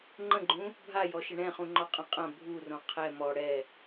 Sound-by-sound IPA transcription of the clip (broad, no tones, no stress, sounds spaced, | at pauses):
ŋ͡ǃ ə̃ ɡ͡ǃ ũ | bʱ a j ɔ ʃ ə ɳ ɛ̃ χ ũ ŋ͡ǃ ɔ qʼ ɐ̃ qʼ ɐ̃ bʱ u r õ qʰ ɛ m ɔ ɽ ɛ